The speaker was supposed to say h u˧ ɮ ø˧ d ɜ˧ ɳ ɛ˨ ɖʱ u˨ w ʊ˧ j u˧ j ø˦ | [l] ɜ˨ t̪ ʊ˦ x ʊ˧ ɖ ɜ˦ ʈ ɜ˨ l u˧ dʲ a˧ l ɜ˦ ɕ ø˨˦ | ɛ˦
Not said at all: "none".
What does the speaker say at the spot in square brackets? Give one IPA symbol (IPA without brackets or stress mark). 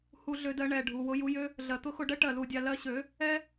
ɮ